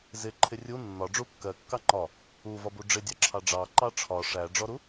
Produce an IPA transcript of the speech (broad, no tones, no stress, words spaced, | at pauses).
zɪ ǃʰɪrʲu nːɒɖ͡ʐu kːɜkːɑ ŋ͡ǃɒ | uvɒbu ɖ͡ʐɪdʲɑǁʰɑ ɖ͡ʐɑ ǃɑʈ͡ʂʰɒ ʂæɖ͡ʐɔɾu